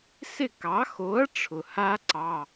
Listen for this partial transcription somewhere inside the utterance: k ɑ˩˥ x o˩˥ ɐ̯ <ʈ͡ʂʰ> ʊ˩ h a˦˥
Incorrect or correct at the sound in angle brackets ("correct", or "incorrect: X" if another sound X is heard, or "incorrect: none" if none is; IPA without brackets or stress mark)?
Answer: correct